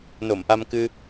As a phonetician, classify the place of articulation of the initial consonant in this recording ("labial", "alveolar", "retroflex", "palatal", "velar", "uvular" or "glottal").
alveolar